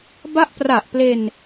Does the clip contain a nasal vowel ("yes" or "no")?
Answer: no